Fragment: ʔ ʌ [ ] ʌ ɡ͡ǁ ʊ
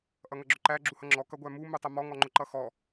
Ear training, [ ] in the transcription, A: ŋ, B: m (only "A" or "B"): A